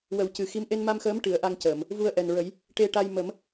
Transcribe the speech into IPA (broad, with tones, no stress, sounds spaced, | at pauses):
w ə˨˩˦ w c ɨ˨˩ x i˧˥ m ʔ e˧ n m a˧ m x əː˧˥ m ʈ ɨ˨˩˦ ə̯ ʔ a˧ ŋ c əː˨˩˨ m | v u˧ ə̯ ʔ ɛ˨˩ n ɹ ə˨˩˦ j | ʈ e˧ ʈ a˧ j m ə˨˩˦ m